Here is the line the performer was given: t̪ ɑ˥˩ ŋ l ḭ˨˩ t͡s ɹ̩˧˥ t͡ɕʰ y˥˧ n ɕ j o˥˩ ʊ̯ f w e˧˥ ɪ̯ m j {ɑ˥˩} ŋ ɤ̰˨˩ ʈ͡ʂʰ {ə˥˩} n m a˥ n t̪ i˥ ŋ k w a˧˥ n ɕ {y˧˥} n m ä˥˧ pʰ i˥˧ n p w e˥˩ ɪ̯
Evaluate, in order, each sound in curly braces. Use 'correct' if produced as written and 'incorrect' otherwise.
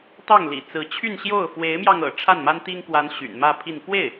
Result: incorrect: ɑ˧, incorrect: a˥˩, incorrect: y̰˨˩

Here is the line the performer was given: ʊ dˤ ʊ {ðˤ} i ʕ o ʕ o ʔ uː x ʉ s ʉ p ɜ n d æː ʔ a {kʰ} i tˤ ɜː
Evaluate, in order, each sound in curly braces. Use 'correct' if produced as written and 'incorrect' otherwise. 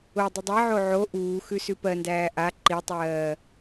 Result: incorrect: dˤ, incorrect: ǃ

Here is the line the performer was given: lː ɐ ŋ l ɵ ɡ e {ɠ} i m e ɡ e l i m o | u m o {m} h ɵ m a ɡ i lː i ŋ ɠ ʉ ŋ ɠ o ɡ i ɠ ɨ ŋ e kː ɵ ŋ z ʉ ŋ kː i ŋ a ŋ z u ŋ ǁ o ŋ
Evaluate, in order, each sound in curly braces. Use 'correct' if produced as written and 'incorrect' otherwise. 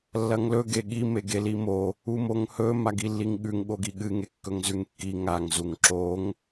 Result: correct, incorrect: ŋ

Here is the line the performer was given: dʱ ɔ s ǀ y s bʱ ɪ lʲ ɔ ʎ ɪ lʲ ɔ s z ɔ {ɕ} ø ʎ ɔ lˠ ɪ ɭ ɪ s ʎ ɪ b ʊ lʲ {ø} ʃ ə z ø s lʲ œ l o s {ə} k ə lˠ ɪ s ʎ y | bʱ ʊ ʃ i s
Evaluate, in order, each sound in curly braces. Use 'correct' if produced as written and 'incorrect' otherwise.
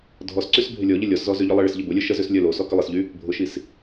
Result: incorrect: z, incorrect: œ, incorrect: ɔ

